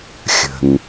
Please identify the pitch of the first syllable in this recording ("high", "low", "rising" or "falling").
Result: low